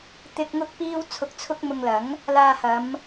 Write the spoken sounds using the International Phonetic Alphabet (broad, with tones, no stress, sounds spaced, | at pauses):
t̪ ɪ˥ k̚ ŋ ʊ˥ k̚ p iː˥ w t͡sʰ ʊ˧ k̚ t͡sʰ ʊ˥ k̚ m ʊ˧ ŋ l ɐ˨˥ ŋ | l aː˧ h ɐ˨˧ m